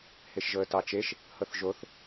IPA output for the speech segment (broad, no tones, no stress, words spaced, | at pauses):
heʃʒɤə̯tɑt͡ʃeʃ | hɤθʒoθ